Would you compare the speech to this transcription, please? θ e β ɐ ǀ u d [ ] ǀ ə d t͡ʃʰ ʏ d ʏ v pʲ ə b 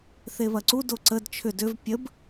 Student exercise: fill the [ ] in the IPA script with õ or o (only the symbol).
o